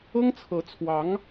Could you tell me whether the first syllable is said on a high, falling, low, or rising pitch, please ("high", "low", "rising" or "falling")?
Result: high